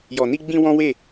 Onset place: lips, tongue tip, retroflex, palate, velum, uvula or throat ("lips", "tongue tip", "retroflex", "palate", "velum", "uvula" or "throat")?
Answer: palate